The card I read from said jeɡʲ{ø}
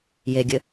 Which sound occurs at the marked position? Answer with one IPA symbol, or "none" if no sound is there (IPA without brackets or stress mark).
ɘ